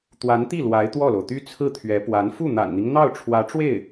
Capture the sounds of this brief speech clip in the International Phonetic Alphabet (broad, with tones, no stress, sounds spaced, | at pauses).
t̪ w a˧˥ n t̪ i˥˩ l w a˧˥ ɪ̯ t̪ w ɔ˥˩ l o˩ ʊ̯ t̪ y˥ t͡sʰ ɹ̩˥˩ t̪ʰ ɥ ɛ˧˥ p w a˧˥ n f u˥˩ n̪ a̰˨˩ n n̪ i˦ ŋ n̪ ɑ˥˩ ʊ̯ ʈ͡ʂʰ w ä˧˥ ʈ͡ʂ w e˥˩ ɪ̯